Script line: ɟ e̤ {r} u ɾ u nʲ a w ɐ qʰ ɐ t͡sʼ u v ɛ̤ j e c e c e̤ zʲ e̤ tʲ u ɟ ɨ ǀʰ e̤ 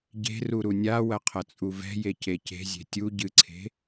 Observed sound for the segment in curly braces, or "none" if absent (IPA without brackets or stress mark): r